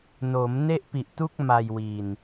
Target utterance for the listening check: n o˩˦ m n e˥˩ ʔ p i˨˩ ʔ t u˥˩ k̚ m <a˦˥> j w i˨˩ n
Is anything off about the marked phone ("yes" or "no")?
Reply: yes